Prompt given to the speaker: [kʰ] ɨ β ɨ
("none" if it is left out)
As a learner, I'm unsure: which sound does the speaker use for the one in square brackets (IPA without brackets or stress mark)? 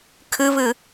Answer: kʰ